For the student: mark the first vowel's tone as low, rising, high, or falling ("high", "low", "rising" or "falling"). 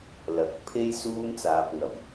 rising